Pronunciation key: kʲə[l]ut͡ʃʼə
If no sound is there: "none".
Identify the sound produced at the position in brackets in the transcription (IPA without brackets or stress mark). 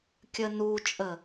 n